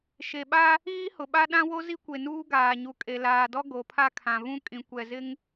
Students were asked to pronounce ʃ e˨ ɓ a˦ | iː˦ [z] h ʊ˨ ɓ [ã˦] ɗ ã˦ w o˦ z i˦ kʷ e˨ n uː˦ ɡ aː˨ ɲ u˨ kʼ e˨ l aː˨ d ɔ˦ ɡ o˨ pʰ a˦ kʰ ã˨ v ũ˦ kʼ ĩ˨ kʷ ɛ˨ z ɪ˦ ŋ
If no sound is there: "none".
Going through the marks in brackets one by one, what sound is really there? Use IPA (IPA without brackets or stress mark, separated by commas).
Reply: none, a˦